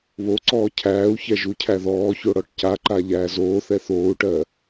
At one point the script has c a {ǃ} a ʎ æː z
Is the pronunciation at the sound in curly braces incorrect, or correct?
correct